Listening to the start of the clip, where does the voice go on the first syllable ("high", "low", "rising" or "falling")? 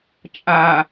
low